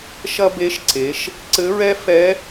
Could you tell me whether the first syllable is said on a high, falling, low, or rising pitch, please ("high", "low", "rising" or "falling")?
high